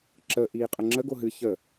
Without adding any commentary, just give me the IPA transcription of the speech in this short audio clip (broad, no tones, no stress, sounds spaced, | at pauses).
ǁ ə ʔ iː qʼ ə ŋ͡ǁ ə ɡ o ɦ ɨ ç ə